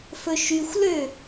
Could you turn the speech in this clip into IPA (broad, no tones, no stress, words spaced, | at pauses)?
fɵʃyxʷlø